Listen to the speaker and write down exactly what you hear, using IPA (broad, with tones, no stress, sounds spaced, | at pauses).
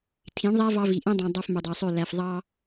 tʰ ĩ˨˦ ɳ ðˤ æ˦ v ɑ˦ v i˨ ʔ ĩ˦ dˤ ĩ˨ dˤ o˦ f m ø˨ dˤ e˨ sˤ ø˦˨ l æ˨ f ðˤ ɑ˦